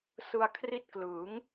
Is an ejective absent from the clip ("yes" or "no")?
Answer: yes